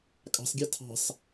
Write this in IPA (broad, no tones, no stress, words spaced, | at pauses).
kʼɑ̤sɡʲɑ tʰɑ̤s